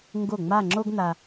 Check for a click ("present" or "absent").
present